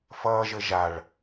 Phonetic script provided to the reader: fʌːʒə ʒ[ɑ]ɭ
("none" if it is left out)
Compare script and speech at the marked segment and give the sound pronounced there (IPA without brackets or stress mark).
a